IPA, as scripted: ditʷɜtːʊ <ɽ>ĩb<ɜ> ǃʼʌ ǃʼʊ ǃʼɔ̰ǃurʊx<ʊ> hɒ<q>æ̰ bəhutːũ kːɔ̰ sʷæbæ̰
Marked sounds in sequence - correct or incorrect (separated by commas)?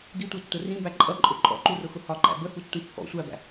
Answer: incorrect, incorrect, correct, incorrect